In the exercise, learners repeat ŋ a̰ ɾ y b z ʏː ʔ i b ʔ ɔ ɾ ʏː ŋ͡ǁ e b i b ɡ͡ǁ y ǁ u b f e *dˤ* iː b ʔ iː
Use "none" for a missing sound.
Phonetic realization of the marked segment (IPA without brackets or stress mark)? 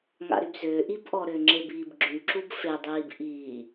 dˤ